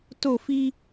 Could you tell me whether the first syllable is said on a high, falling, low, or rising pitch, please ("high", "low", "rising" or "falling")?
falling